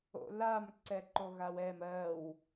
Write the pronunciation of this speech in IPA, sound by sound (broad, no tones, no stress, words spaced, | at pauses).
o̰lam ǀɛǃoɣawɛm ɜw